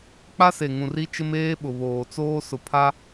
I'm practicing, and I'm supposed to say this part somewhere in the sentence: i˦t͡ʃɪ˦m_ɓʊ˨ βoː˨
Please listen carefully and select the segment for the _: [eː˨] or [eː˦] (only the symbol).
eː˦